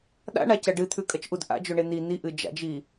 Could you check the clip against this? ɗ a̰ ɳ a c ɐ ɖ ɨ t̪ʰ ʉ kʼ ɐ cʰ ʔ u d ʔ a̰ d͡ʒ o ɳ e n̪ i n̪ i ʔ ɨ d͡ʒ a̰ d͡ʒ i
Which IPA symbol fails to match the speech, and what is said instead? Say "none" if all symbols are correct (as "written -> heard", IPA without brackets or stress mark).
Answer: cʰ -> t͡ʃ